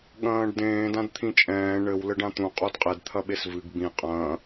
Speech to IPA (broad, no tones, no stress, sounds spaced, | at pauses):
ɠ ɐ̃ː ɖ d ẽː d ã d t̪ʰ ĩ t͡ʃʼ ɛ̃ː ɳ ɘ w l ɘ ɖ ã t̪ ũ qʼ o d qʼ e d t̪ʰ ɐ ɓ e s v ɨ ɡ b ĩ qʼ ɐ̃ː